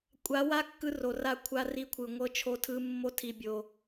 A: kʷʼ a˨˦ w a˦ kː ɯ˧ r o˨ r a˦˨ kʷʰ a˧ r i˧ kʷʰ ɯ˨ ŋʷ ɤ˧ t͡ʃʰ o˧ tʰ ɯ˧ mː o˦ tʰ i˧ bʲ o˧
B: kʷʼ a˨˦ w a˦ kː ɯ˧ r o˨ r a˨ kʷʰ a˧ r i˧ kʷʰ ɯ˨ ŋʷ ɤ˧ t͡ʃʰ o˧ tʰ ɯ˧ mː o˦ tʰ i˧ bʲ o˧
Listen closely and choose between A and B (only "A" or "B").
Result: A